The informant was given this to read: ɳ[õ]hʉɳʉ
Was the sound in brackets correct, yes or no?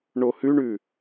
no